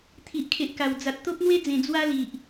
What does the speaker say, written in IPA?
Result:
t̪ʰ i˨ ʔ kʰ e˨ ʔ k a˨˩ w d͡z a˨ t̚ t̪ o˦ p̚ n̪ w e˦ d͡z ẽ˨˩ d͡z w a˦ l i˨ ʔ

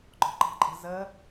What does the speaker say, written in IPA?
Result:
ɡ͡ǃ ɔ̤ ǃ ɑ̤ ǃʼ ə̤ z ə

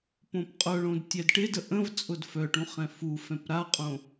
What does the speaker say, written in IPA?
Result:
p õ p qʼ ʊ ɭ õ d tʲ ɛ d ʈ ɪ d ə ʔ ə̃ v t͡sʼ ʊ d f œ ʈ ũ χ ɛ̃ f u f ɛ̃ p ɾ a qʼ õ

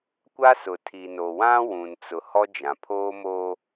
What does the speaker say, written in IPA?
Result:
kʷ a˦ s ʊ˨ tʰ i˨ n o˨ w ã˦ w ũ˨ n t͡s ʊ˨ h ɔ˦ d͡ʒ ã˨ pʰ oː˦ m o˦

